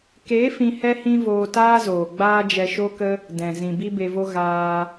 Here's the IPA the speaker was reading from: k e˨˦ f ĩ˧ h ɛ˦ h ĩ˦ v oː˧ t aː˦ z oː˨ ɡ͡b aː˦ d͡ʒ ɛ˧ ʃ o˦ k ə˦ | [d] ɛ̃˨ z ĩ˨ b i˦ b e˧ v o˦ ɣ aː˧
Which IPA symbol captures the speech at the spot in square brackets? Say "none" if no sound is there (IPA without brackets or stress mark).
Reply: d